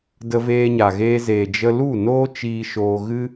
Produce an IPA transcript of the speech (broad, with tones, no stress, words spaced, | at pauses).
də˧ veː˧ɲa˨ ɣeː˧zeː˨d͡ʒə˧ lu˦˨noː˦ t͡ʃiː˧ʃoː˧ɣɨ˦